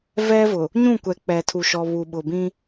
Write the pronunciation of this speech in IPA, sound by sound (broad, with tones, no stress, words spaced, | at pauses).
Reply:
vɛ˦vʊ˨ | ɲũ˦˨kʷɛ˨ k͡pɛ˨tʰu˨ʃɔ˨ βu˨ɓʊ˨bĩ˦